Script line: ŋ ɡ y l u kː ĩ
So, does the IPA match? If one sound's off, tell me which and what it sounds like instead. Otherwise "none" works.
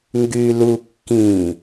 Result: none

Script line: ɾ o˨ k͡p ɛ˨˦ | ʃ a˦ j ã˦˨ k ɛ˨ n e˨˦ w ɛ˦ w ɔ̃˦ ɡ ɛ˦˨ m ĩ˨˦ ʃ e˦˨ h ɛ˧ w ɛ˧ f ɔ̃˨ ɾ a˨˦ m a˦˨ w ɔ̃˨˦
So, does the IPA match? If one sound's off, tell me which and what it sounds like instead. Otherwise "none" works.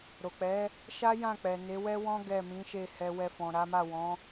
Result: k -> k͡p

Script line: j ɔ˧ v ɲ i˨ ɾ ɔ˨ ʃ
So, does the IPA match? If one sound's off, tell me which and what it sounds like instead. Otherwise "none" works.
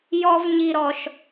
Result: none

